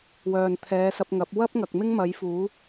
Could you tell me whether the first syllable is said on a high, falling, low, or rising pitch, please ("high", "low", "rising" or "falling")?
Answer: low